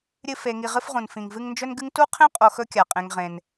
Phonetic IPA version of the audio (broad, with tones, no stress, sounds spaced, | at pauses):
ɾʲ ɨ˦ f e˨ ŋ i˨ ʁ ɨ˦ f ʁ ũ˩ n f ĩ˩ ŋ v ɨ˦ ŋ n d͡ʒ ɵ˥ n ɡ ɨ˥ ŋ t u˥ qʰ ẽ˥ qʼ o˨ x ɵ˥ kʲ a˩ qʼ ẽ˨ ŋ ʁ ẽ˩ n